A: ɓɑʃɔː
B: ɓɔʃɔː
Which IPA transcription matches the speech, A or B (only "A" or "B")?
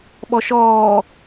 B